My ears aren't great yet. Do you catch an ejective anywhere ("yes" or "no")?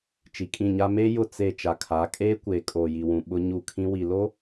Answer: yes